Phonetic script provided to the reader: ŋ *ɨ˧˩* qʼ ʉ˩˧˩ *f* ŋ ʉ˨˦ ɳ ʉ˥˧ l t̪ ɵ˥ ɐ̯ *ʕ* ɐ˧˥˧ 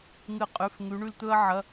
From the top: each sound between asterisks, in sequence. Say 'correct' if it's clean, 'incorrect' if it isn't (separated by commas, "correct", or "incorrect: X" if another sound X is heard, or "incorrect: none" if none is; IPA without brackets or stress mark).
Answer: correct, correct, correct